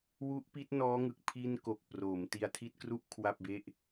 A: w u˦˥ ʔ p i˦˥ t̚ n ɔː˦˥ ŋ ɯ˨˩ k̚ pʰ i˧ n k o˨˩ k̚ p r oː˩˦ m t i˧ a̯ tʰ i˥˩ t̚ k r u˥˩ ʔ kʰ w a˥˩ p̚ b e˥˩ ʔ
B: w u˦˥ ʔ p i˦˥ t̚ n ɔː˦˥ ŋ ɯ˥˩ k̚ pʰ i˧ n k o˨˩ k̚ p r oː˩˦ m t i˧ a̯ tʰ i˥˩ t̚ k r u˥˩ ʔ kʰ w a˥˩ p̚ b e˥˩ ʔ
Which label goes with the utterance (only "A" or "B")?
A